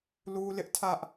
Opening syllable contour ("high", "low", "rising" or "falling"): high